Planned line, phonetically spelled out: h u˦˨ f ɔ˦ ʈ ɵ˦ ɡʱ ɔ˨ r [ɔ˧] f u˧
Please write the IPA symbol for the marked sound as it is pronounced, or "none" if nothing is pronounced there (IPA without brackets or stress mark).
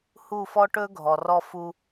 ɔ˧